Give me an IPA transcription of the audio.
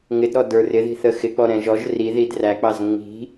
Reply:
ŋ ɪ d ɾ ɔ d ə˞ r ɪ ð i̤ θ ə x ɪ k͡p ɔ ɾ ɛ̃ ʒ ɔ ʒ r i ð i d r æ k͡p ɑ z ŋ͡m i̤

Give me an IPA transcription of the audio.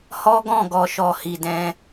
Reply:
h ɔ˦ ɡ ɔ̃˦˨ ɡ ɔ˨ ʃ ɔ˨ h i˨ d ɛ̃˧

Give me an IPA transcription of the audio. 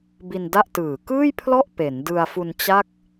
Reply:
b i˧ n d a˥˩ ʔ t ɯː˨˩ k ɯː˥˩ j pʰ l ɔ˥˩ ʔ p e˩˦ n d ɯ˧ a̯ f u˧ n t͡ɕ a˥˩ k̚

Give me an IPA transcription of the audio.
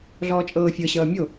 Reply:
ɮ ɔː t͡ʃʼ ɤː fʲ ɤ ɕ ʌː mʲ o

